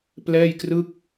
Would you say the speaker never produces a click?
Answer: yes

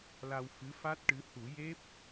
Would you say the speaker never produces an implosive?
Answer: yes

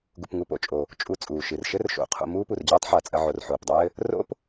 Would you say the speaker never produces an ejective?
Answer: no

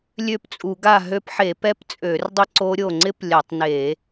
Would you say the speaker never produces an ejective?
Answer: no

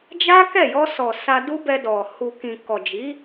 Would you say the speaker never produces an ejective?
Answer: yes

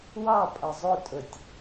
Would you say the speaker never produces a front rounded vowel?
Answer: yes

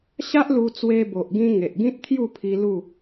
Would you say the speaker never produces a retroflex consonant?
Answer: yes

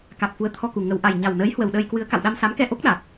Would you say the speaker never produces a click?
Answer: yes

